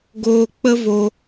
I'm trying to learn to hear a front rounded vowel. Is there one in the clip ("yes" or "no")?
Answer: no